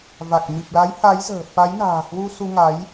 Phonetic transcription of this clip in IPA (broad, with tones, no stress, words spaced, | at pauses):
va˨˩k̚ mi˨˩p̚la˨˦j ha˨˦jzə̤ː˨˩ fa˨˦jna̤ː˨˩hwu˧ su˧ŋa˨˦j